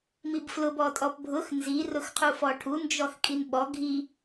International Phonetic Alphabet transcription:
mibflʊbɔ tʼɔpbʱʊx nzirʊxqʰu fɔʈʰund͡ʒɔx kʼinɓɔ ɡʱi

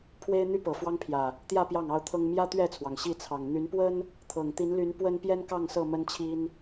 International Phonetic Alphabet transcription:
pʰwe˦ɪ̯n̪y˦ pɤ˨˩ fwɑ˦ŋpʰjä˨˩ | t̪jä˥˨ pjɑ˥˨ŋɑ˦ʊ̯t̪ʰɤ˦ŋ mjä˦ t̪ɥɛ˥˨t͡sʰwɑ˩ŋ ɕi˥˨t͡sʰɑ˨˩ŋ n̪y˨˦npwə˦n | t̪ʰɤ˨˩ŋt̪i˨˦nly˨˦n pwə˦npjɛ˦nkɑ˥˨ŋsɤ˥˨ mə˦nt͡ɕʰi˦n

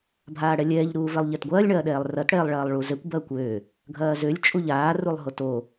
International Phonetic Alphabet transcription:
bʱaːɽɛlʲɛːʎ ɾuːvɛlˠʎɛtɡʷɐːlʲ ɳɐːɗɛːlˠrɐt ɽɛːlˠɭɐːlˠɭuzɛkʷ bɐːkʷøː | ɡʱɐːzølʲ t͡ʃʼuʎaː rulˠɦoto

